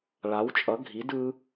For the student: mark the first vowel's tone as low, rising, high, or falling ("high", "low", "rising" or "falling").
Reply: rising